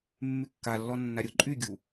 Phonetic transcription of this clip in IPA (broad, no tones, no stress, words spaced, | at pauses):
mːykːalːɔ nːaɾʲʊ ǃʼyɡʲu